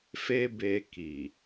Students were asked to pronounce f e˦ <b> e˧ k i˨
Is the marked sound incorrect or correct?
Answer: correct